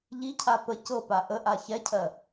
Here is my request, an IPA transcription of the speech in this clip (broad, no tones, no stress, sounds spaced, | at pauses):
ʎ i cʰ a p ə c ɤ p a ʔ ə ʔ a ç ɛ cʰ ɜ